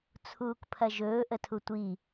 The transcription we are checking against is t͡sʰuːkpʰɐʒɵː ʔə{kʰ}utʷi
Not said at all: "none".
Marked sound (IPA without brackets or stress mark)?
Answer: tʰ